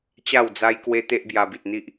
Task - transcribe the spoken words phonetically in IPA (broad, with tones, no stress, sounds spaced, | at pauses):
t͡ɕ a˥˧ w d͡z a˦ j k w e˦ t̪ e˦ ʔ b j a˧ b i˨ t̚ n̪ i˦ ʔ